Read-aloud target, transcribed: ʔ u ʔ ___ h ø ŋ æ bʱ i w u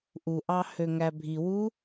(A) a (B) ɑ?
B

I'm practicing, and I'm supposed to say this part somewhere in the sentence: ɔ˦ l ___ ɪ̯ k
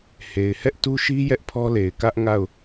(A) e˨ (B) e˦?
A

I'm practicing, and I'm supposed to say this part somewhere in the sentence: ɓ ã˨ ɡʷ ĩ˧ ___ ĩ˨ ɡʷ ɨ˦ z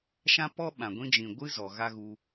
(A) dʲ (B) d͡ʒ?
B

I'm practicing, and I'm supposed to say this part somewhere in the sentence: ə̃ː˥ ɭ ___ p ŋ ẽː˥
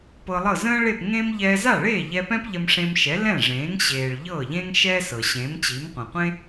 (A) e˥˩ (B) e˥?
A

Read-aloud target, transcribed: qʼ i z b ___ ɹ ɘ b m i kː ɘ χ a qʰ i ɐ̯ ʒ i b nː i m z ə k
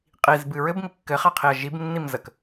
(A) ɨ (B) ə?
A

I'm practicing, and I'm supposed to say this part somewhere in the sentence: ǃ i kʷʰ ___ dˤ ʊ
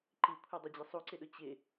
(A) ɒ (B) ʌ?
B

